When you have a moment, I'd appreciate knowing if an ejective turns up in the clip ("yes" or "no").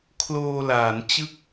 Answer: no